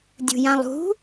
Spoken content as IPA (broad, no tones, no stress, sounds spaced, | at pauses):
dʲ ṳ j ã lˠ ṳ